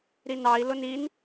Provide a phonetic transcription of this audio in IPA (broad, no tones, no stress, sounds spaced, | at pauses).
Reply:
ɾ i n ɑ i̯ l ʊ n i n